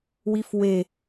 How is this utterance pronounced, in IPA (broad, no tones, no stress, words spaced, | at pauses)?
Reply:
wifwe